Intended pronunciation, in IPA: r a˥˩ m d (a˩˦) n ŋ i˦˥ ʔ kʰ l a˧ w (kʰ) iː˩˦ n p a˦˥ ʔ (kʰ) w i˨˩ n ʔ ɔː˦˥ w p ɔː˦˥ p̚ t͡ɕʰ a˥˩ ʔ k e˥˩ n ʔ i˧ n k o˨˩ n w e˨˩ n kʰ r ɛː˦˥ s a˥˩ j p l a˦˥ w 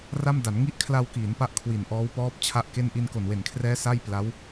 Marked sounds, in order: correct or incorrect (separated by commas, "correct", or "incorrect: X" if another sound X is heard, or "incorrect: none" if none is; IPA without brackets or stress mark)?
correct, incorrect: k, correct